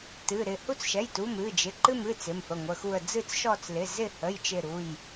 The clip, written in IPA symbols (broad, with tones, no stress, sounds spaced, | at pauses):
t ɨ˩˧˩ ɾ ɪ˦˨ h u˦˨ t͡s ʃ ɛ˩˧˩ j t u˩˧˩ m ɨ˩˧˩ d͡ʒ ɪ˩˧˩ ǃ ɨ˦˨ m ɨ˩˧˩ t͡s ɪ˩˧˩ m f ə˩˧˩ ŋʷ ə˩˧˩ x u˦˨ ə̯ d͡z ɨ˦˨ t͡s ʃ ɔ˦˨ t͡s l ɪ˩˧˩ z ɪ˦˨ h ə˩˧˩ j t͡ʃ ɪ˦˨ ɾ u˩˧˩ j